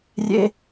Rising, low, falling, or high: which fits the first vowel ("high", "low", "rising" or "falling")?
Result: high